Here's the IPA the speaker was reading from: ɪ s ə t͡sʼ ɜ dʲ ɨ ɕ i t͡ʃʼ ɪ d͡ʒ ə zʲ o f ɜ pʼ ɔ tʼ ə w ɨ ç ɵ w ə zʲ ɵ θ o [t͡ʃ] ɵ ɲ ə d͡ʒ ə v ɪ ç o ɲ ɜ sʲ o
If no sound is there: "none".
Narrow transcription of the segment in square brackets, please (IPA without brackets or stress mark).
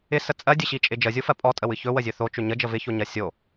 t͡ʃ